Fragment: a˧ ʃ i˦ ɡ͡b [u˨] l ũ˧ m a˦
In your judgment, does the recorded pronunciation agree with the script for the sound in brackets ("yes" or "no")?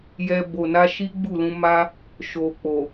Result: no